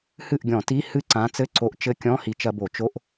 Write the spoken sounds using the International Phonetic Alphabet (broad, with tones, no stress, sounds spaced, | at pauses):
h ɨ˥˩ ʔ ɡʲ ɔ̃˧˩˧ t i˧˥˧ h ɨ˦˥ ǀ ã˨˥ t͡s ɘ˧˥˧ ǀ o˨˥ ʔ t͡ʃ ɘ˧˥˧ kʲ ɔ̃˧˥˧ h i˨˥ t͡ʃ ɐ˧ b o˧˩˧ t͡ʃ o˧˥˧ ʔ